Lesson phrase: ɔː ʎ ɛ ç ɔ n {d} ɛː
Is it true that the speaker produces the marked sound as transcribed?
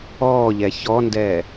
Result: yes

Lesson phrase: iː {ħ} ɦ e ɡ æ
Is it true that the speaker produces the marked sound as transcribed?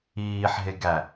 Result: yes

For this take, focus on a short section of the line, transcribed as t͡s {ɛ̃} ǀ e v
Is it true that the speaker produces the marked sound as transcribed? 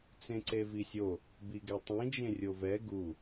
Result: no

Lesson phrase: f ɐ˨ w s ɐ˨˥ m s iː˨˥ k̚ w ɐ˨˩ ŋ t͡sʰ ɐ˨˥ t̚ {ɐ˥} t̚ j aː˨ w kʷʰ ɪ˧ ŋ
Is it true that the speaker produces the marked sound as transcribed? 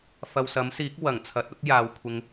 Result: yes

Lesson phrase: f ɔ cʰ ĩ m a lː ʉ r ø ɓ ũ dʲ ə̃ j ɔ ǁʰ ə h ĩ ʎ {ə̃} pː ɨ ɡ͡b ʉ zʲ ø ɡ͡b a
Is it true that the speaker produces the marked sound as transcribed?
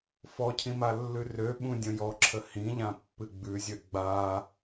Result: no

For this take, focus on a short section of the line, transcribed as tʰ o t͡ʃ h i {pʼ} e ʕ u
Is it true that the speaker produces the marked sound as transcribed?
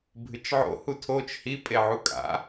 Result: yes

